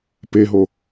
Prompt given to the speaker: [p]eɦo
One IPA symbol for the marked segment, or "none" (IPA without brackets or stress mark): p